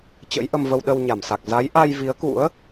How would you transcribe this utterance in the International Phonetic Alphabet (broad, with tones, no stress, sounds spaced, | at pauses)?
t͡ɕ ə̰˧˥ j ʔ ə˧ m v ə˧ w ɗ ə˧ w ɲ a˧˩ m s a˨˩ k̚ z a˨˦ j ʔ a˧ j v i˨˦ ə̯ k ṵ˧˥ ə̯